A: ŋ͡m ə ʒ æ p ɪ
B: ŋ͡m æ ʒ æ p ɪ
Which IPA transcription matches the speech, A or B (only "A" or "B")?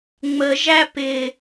A